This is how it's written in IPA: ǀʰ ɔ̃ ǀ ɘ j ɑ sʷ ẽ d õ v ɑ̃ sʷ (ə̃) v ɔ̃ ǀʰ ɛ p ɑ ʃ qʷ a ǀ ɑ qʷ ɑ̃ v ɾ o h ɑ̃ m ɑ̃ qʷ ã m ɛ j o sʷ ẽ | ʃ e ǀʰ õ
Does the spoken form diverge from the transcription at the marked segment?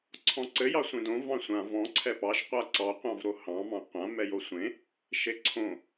yes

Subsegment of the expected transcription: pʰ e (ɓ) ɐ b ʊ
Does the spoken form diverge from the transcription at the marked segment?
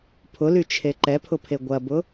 yes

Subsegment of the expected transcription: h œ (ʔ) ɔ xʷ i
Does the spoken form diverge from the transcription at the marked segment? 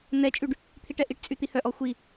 no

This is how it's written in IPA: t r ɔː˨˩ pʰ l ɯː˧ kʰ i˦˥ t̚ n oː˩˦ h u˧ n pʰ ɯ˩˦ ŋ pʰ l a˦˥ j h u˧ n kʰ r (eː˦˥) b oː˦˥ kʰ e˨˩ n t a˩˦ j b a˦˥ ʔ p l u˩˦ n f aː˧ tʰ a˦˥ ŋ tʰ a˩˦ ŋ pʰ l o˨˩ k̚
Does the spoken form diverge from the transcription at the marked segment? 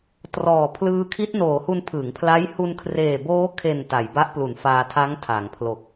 yes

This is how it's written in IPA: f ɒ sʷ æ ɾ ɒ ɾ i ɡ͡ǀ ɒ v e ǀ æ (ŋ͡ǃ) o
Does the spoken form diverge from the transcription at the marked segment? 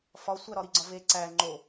no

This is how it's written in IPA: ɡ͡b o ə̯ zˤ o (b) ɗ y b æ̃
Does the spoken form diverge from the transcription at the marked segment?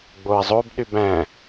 no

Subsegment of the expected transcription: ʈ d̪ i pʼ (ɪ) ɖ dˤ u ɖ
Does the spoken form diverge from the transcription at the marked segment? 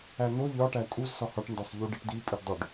yes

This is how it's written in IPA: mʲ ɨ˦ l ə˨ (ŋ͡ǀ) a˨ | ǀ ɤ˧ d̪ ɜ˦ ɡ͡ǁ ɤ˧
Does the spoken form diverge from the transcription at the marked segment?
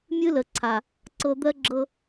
yes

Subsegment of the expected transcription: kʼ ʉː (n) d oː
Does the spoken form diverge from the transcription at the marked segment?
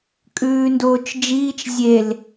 no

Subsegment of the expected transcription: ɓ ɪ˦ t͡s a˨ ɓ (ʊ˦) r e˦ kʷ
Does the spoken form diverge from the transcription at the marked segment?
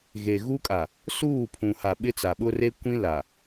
no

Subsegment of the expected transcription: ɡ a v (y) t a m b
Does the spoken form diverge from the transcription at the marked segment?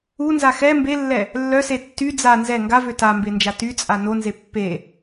yes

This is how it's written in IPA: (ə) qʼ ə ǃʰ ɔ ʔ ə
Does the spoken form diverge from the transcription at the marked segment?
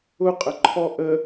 yes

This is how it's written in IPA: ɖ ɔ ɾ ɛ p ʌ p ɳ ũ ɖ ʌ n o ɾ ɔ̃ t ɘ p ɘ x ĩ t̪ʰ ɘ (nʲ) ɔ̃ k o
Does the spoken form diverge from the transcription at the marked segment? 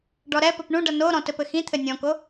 no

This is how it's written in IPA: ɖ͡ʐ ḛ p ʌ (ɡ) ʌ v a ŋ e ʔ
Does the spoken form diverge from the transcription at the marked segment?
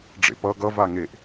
no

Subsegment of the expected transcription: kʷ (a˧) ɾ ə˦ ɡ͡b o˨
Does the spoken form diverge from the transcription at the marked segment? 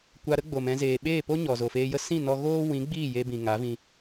no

